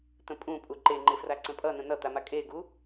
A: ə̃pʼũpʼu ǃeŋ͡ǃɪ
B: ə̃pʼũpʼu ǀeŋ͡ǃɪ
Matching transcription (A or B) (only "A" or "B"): A